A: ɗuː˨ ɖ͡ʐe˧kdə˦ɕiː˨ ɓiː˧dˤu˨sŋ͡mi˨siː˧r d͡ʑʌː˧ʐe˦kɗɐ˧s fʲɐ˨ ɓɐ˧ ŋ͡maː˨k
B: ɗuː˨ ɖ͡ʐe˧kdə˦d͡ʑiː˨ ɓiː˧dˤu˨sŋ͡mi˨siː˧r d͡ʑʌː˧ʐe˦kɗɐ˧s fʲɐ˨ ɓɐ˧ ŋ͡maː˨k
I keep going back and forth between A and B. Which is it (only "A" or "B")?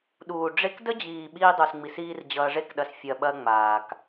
B